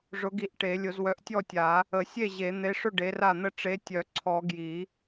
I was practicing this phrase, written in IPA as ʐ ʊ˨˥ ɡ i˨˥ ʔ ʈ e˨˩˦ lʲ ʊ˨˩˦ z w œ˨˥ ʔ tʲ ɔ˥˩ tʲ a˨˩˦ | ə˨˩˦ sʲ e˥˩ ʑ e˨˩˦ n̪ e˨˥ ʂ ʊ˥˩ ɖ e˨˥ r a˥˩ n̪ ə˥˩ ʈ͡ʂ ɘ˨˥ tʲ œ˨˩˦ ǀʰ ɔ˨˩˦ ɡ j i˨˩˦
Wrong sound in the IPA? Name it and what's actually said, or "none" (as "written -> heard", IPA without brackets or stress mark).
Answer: ɘ˨˥ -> e˨˥